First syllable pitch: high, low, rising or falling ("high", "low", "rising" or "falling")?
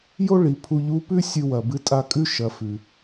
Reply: high